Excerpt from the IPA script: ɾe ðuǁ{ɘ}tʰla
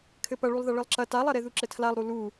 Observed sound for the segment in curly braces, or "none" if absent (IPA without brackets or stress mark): ɘ